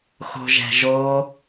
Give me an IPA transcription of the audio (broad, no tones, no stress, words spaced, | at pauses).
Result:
xo̤ʒɛ̤ʒo